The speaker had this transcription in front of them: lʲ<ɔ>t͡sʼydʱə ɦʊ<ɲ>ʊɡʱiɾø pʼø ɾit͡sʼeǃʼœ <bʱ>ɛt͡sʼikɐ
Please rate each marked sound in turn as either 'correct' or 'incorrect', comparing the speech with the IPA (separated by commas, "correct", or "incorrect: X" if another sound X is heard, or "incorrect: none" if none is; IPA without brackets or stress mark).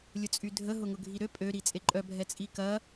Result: incorrect: ʊ, incorrect: ŋ, correct